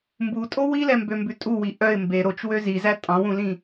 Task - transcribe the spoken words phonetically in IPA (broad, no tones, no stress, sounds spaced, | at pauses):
m b u tʼ o w i l ɛ m b ø m b ʉ tʼ u w i ʔ œ ɪ̯ m b e ɾ o t͡ʃ w ø z i z æ tʼ ɑ̃ w ũ l ĩ